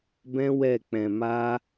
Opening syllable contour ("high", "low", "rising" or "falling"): high